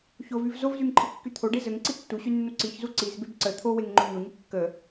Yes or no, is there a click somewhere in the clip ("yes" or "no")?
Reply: yes